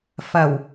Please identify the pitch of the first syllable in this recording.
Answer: low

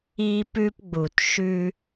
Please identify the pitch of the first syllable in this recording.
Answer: high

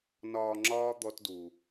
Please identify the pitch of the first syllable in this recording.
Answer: low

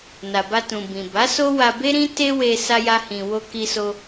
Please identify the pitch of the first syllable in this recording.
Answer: low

